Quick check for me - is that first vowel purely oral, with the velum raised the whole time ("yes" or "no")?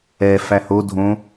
yes